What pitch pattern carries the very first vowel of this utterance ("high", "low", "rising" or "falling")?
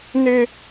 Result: high